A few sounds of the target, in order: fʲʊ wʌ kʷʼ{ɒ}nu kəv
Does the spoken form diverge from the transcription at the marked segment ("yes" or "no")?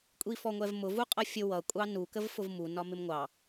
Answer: yes